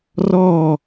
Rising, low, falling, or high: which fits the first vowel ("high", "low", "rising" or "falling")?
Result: falling